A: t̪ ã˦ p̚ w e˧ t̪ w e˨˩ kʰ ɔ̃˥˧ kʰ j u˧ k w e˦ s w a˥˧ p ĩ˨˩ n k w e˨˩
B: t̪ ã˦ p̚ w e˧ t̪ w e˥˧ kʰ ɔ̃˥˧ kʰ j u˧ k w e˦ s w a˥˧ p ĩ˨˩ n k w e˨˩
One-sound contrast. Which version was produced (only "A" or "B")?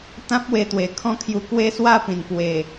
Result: A